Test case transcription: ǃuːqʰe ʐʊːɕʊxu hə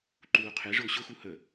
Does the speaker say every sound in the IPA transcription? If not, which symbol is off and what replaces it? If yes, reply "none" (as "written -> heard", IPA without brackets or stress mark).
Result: none